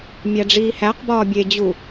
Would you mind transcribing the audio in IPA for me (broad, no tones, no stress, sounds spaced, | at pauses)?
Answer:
mʲ æ ɖ͡ʐ iː h æ q b ɒː bʲ e d͡ʑ u